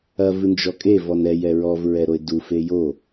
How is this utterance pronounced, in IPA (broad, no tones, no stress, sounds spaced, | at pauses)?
ɐ v ɨ n d͡ʒ ɔ kʼ e v ɔ n ɛ j ɛ ɹ ɔ v ɹ ɛ ɾ o ɪ̯ d u f e j o